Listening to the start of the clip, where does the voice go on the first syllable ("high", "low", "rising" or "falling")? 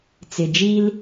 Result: low